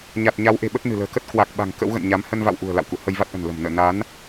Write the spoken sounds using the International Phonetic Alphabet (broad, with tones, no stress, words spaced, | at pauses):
ɲa˨˩t̚ ɲa˨˦wʔe̤˨˩ ɓə˦˥t̚nɨ̤˨˩lə̤ː˨˩ kə˦˥t̚ kwa˨˩k̚ɓa̤˨˩ŋ kə̰˧˥wɣə̰˧˨nɲa˨˦m hə˧nva̰˧˨wʔṳ˨˩ə̯ la̰˧˨wkṵ˧˨ hə˧jva˦˥t̚ʔə̤˨˩n lə̤˨˩m nə̰ː˧˨ na˨˦n